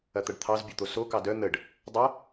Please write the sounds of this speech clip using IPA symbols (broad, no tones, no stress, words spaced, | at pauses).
ɐt̪ɐɖt̪ʰɑz bʲot̪oso kɑdœ n̪əɖ | dˤɐ